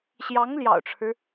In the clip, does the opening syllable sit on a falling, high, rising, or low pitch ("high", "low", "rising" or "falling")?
rising